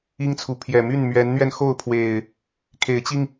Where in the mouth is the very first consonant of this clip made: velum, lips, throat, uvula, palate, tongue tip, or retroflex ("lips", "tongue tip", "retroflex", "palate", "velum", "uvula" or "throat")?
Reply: velum